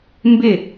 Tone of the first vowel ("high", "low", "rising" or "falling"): falling